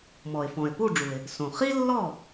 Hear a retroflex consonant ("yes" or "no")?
yes